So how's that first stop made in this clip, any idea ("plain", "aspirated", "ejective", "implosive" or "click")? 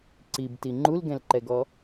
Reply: click